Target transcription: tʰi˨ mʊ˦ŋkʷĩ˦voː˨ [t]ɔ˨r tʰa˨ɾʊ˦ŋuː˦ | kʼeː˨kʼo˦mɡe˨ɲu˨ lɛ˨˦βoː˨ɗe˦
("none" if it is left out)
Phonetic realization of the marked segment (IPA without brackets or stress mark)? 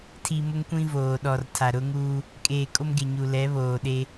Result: ɗ